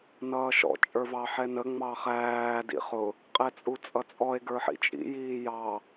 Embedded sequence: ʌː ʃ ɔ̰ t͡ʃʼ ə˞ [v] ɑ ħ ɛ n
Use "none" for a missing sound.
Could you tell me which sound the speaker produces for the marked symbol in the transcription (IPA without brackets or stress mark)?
v